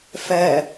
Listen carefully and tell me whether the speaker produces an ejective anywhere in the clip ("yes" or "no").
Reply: no